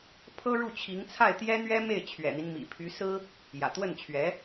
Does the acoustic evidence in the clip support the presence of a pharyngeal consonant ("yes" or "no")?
no